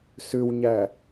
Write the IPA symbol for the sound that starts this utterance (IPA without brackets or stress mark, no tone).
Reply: s